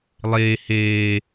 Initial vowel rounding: unrounded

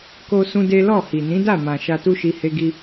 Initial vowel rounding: rounded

